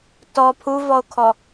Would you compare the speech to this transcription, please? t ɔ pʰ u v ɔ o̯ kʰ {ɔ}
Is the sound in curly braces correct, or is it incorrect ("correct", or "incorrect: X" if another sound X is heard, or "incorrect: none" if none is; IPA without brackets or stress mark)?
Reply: correct